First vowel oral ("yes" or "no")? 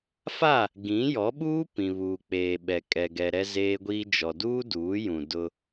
yes